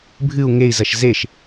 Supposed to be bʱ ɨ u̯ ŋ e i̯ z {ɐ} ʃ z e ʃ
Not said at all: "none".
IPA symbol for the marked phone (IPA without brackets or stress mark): ɐ